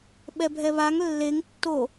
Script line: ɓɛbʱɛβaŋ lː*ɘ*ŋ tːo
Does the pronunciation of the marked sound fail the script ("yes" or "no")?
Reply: yes